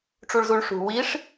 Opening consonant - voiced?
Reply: no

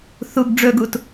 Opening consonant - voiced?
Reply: no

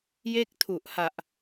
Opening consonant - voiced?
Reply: yes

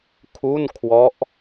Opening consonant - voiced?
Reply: no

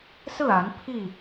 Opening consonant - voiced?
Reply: no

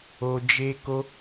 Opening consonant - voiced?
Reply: yes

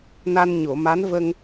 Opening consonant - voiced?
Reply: yes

